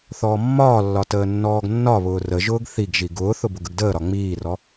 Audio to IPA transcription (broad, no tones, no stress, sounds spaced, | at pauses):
θ ɔː mː ɒː lː ɒ t əː nː ɔː ɡ nː ɒ β ʊː r ə ʒ ʊː ɡ θ i ɡ ʒ i ɡ ʊː θ ʊ b ʊ ɡ ə ɡ d əː ɾ ɒ ŋ͡m iː r ɔ